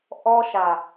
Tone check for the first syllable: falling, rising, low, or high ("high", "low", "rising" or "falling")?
high